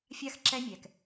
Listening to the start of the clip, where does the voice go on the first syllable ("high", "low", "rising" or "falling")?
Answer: falling